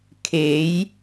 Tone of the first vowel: rising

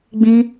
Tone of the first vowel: high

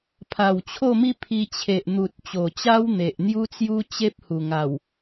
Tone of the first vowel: low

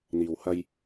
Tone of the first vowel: low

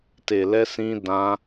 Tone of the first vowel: low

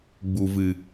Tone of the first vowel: low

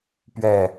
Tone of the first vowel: falling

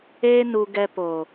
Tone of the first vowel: high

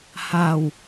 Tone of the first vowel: low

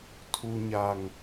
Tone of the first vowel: high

